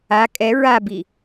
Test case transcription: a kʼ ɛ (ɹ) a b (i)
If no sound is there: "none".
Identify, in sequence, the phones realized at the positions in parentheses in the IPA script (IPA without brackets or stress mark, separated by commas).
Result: ɹ, i